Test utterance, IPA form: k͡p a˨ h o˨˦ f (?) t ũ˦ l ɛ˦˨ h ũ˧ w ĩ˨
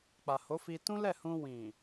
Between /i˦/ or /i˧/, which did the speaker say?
i˧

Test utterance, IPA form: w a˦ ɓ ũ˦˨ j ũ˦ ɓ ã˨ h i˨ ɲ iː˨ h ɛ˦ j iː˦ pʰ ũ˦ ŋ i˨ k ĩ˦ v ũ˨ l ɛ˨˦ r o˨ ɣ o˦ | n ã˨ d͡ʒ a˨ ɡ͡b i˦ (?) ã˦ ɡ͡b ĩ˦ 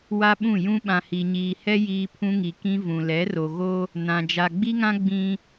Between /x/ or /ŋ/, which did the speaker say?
ŋ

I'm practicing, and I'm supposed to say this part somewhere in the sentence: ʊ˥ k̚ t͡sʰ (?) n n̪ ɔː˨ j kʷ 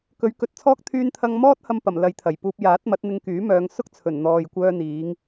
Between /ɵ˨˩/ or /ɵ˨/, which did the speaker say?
ɵ˨˩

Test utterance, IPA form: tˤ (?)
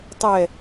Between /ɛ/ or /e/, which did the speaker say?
ɛ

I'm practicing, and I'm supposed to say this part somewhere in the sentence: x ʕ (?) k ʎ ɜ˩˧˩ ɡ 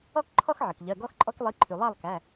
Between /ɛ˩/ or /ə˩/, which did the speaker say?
ə˩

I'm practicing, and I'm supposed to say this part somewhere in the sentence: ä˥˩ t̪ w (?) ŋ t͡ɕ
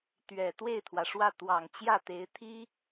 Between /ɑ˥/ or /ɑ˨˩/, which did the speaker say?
ɑ˨˩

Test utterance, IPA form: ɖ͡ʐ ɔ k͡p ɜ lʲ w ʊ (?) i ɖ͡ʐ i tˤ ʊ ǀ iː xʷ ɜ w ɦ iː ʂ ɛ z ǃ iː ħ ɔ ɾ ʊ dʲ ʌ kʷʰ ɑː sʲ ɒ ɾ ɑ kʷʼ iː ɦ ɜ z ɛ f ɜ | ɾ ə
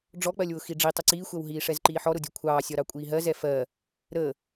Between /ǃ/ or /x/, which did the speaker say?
x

